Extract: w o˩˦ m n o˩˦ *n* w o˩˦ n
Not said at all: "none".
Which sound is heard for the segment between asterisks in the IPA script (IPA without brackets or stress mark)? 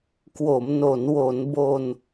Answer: n